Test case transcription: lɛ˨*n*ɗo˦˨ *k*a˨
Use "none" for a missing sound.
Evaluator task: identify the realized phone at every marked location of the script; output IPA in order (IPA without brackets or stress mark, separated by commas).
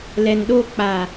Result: n, k͡p